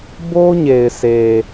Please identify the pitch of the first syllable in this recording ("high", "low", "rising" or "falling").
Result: high